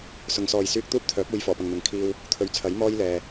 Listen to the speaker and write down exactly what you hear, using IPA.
s ʊ˨˧ ŋ s ɔː˨ j s yː˧ k̚ t̪ uː˥ p̚ t̪ʰ œː˨˥ p̚ uː˨˧ j f ɔː˨˩ p ɐ˨ ŋ n̪ ɐ˨˧ ŋ kʰ iː˧ w | t̪ʰ ɵ˨˧ ɥ t͡sʰ ɐ˨˥ j m ɔː˥ j l ɛː˨

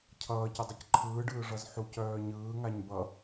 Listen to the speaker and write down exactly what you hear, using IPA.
cʰ ʌː c ə dˤ ɯ c ǃʰ ɯː ɖ ɯː ʐ ʌ z ħ u c œː ɲ ɯː ŋ a ɲ b ʌ

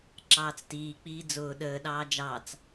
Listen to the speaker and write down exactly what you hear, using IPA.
ǁ ɑː t͡s t iː k͡p iː d͡z ʊː ɗ əː ɗ ɑː d͡ʒ ɑ t͡s

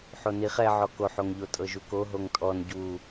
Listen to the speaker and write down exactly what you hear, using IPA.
ħ o n i χ ɛ ʕ ɔ k o ħ o ŋ ʎ o tʼ ɤ ʒ u k o ɦ o ŋ tʼ ɔ n ɟ u

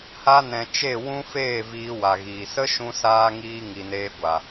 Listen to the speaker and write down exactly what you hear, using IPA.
h a˧ n ɛ̃˨ t͡ʃ e˦˨ w ũ˦ f eː˦˨ v iː˧ w a˨ ɣ iː˨ s ə˦ ʃ ũ˧ s aː˦ ŋ iː˦ ŋ i˨ n eː˧ ɡʷ a˨

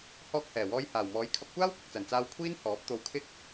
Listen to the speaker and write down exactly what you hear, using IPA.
h ɔː˧ k̚ h ɛː˨˩ w ɔː˧ j h aː˨˩ w m ɔː˨˥ j kʰ ɐ˧ p̚ kʷ aː˥ w kʷ ɪ˨ k̚ t͡s ɐ˨˩ n t͡s aː˧ w kʷʰ iː˥ n h ɔː˨˥ p̚ t̪ o˧ w kʰ ɪ˥ k̚

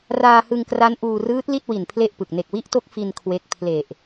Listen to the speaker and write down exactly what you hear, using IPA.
r aː˧ h ɯ˧ ŋ k r a˦˥ n ʔ uː˧ r ɯː˦˥ t̚ l i˥˩ t̚ w i˨˩ n pʰ l e˥˩ ʔ p ɯ˨˩ k̚ n e˨˩ k̚ w i˦˥ ʔ t o˦˥ k̚ f i˧ n kʰ w e˦˥ k̚ pʰ l e˨˩ ʔ

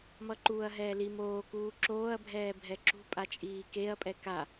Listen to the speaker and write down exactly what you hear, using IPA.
m ʌ ǃ uː ɐ̯ ɦ ɛː l i m oː k uː ǁ oː ɐ̯ bʱ ɛː bʱ ɛ ǁ ṳ pʼ a t͡ʃʼ iː k e ɐ̯ pʼ ɛ k a

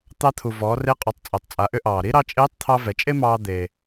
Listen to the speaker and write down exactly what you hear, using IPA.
t̪ ɑ˧ t̪ʰ u˩ v ɔː˩˧ r e˧˥ qʼ ɔ˩˧ tˤ t͡sʼ ɛ˩ tˤ t͡sʼ a˩˧ ʔ ʏ˧ ʔ ɑː˩ ɾ i˥ ɾ ɑ˧ t͡ʃʼ eː˧˥ tˤ t̪ʰ ɑ˧ v ɛ˩˧ t͡ʃʼ e˥ m ɑː˧ d̪ e˩

